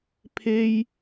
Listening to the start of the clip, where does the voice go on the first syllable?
high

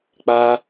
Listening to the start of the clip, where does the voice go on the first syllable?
high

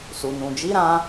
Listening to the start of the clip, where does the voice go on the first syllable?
low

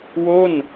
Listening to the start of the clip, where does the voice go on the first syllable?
falling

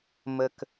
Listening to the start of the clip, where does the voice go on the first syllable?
low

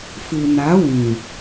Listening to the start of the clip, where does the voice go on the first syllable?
low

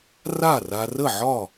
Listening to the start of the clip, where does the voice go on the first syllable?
falling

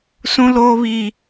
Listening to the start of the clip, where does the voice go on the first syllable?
high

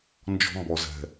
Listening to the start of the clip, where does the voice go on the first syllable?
high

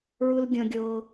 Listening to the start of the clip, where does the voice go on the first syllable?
high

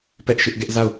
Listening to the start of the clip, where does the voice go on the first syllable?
high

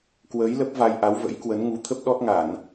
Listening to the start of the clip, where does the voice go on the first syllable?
rising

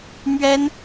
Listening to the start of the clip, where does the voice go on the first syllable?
high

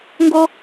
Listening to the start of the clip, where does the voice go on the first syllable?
high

